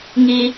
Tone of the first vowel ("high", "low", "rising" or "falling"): high